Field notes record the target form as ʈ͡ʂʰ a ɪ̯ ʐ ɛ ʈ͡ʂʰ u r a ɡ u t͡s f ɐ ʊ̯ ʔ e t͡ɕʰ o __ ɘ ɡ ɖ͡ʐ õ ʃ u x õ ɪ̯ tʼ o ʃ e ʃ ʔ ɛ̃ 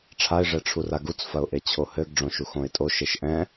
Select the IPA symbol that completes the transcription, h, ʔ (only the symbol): h